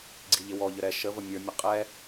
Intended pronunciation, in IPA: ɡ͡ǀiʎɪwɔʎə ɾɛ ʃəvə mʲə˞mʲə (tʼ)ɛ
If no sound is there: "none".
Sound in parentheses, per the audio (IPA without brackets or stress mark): qʼ